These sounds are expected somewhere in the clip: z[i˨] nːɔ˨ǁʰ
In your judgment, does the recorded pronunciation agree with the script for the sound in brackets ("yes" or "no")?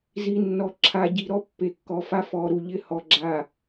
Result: yes